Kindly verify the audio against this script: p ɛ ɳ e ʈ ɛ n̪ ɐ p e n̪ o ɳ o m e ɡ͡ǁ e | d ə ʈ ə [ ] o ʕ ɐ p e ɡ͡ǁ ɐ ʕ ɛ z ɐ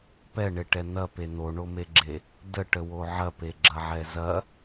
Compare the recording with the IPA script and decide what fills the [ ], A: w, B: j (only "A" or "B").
A